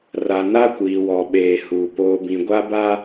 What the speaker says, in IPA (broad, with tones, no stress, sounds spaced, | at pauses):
r a˨ n a˦ kʷ iː˨ w ɔ˨ ɓ eː˨ h uː˨ p oː˨ b ĩ˨ ɡʷ a˦ b a˦